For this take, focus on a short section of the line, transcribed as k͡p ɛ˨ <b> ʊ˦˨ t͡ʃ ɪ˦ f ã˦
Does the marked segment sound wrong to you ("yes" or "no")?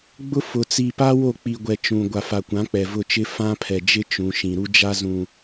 yes